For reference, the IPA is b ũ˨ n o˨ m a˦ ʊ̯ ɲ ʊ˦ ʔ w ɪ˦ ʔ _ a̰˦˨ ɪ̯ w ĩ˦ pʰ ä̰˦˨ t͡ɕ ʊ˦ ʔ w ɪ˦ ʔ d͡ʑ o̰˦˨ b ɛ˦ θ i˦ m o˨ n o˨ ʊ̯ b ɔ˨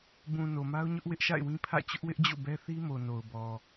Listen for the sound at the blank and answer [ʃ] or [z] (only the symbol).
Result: ʃ